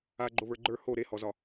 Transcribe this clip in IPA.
a ɡ͡ǃ o β ə˞ ɡ͡ǃ ə˞ h o ɾ e h ɔ z ɒ

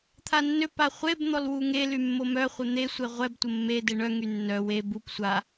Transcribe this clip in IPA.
t̪ʰ a nː ø p a χʷ e b n̪ ɔ l w u ŋ e l y mː o m œ χʷ ɛ n̪ e sʷ e ʁʷ ɛ b tʷ ə mː e d e ɳ œ ŋ y nː œ w e b u p sʷ a

